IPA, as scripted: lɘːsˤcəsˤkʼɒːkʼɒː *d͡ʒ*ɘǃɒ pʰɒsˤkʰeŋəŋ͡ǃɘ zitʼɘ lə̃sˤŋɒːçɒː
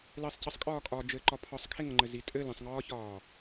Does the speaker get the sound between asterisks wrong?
no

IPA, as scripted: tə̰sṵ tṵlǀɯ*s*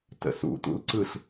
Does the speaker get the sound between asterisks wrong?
yes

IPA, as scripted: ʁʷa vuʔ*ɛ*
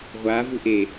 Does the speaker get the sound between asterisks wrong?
yes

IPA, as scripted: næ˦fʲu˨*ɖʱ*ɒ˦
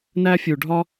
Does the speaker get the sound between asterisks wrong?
no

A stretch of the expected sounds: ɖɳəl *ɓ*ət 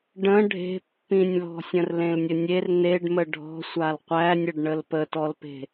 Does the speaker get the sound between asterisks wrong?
yes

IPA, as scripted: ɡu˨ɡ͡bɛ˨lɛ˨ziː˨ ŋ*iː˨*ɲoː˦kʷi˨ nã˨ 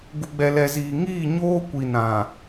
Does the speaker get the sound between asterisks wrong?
yes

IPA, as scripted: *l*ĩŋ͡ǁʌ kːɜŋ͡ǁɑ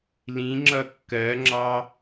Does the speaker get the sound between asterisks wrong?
no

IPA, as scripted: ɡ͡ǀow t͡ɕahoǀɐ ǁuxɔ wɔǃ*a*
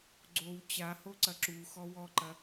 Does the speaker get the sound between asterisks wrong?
yes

